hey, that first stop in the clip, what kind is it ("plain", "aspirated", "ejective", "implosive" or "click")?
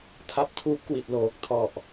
aspirated